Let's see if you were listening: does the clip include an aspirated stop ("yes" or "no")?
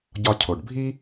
yes